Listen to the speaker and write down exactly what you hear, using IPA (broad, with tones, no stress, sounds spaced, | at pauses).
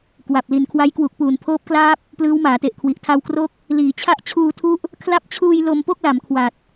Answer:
k w a˨˩ p̚ l i˨˩ n kʰ w a˦˥ j k w u˨˩ k̚ p uː˨˩ n pʰ oː˦˥ p̚ k l aː˦˥ p̚ | p l ɯː˦˥ w m aː˩˦ t e˨˩ ʔ kʰ w i˨˩ ʔ tʰ a˧ w k r o˦˥ k̚ | l iː˩˦ t͡ɕʰ a˦˥ ʔ t͡ɕʰ uː˧ tʰ u˦˥ ʔ | kʰ l a˦˥ p̚ t͡ɕʰ uː˧ j l o˧ m p o˥˩ k̚ l a˩˦ m kʰ w a˨˩ t̚